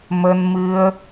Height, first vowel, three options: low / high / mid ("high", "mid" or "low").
mid